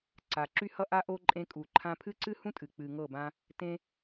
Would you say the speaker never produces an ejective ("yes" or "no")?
no